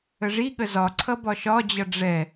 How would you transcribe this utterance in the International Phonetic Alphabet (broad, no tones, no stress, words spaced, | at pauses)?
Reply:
əʐiɠə zɒǀʰʌ bɒʃɒd͡ʑʌ ɖ͡ʐɛ